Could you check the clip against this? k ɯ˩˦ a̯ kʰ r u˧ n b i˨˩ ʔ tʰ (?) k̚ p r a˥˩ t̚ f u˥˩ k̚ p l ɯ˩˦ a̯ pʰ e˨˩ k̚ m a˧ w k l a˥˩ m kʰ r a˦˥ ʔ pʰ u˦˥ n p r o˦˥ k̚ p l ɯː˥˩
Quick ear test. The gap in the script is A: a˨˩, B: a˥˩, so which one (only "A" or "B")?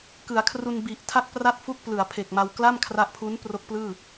B